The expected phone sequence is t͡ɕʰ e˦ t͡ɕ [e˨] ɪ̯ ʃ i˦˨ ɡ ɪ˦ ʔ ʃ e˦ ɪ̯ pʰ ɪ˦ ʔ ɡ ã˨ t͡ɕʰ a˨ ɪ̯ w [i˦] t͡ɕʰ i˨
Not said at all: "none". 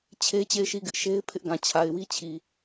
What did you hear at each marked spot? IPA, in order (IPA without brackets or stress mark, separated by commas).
e˦˨, i˦